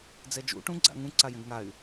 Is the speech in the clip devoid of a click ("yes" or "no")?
no